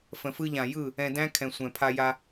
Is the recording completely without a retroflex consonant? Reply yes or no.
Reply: yes